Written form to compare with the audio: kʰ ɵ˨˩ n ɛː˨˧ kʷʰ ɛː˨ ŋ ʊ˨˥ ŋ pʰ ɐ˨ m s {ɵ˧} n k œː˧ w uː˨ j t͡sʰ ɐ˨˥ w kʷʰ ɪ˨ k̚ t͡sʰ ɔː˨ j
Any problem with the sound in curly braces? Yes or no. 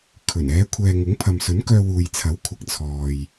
yes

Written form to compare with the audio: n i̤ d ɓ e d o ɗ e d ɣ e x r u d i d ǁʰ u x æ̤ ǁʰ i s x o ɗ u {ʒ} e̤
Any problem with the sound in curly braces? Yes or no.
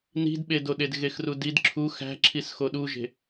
no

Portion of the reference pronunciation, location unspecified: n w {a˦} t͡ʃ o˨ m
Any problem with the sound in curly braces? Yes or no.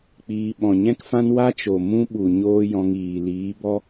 no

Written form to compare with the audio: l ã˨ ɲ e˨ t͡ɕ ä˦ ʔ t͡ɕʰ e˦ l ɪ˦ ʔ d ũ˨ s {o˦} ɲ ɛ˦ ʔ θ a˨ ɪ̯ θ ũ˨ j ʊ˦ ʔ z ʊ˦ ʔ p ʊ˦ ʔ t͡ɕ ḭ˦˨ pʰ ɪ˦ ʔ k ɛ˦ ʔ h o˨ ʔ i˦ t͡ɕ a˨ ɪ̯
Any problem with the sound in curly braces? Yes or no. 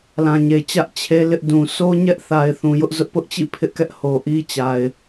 no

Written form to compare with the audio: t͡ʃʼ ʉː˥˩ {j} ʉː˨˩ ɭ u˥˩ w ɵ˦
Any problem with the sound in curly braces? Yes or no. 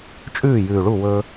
no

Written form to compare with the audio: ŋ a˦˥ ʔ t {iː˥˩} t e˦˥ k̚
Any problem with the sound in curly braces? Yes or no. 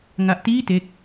no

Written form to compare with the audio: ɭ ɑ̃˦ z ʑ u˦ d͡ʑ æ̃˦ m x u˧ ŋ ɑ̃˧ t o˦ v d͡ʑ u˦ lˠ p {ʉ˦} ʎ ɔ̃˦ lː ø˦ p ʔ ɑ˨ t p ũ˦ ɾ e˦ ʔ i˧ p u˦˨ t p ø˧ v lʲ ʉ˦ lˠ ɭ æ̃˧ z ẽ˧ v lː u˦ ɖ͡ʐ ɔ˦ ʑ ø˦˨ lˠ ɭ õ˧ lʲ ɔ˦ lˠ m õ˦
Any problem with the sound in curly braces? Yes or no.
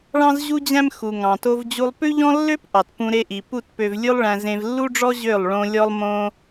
no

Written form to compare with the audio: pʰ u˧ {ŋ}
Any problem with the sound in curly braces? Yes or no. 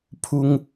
no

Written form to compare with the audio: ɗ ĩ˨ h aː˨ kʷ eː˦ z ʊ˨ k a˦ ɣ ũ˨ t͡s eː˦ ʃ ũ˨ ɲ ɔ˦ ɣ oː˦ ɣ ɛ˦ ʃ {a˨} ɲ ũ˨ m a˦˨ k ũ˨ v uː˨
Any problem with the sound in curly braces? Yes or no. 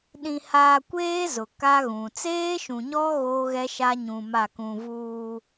yes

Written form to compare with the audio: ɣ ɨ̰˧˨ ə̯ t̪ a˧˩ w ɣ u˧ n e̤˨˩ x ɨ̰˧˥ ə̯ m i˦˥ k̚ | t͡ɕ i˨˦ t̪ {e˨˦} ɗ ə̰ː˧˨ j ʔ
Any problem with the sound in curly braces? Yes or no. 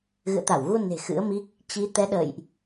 yes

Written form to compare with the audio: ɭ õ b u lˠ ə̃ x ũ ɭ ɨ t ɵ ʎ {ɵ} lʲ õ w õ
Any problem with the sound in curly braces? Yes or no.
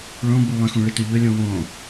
no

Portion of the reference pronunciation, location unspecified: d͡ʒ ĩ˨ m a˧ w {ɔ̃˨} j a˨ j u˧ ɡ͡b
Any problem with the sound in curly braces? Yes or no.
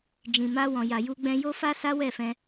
no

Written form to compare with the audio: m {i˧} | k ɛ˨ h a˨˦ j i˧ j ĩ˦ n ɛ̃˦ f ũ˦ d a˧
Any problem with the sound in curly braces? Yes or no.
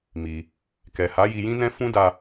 no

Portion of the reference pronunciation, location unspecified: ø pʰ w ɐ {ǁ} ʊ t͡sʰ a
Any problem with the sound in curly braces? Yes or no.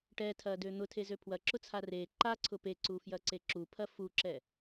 no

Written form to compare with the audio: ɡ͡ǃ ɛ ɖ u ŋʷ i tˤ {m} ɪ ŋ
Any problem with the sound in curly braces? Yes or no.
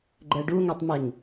no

